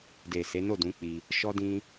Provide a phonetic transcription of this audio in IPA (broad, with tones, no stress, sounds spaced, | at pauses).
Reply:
d e˨ s e˨˦ n o˦˨ d ũ˨˦ k͡p i˧ | ʃ ɔ˧ d ĩ˧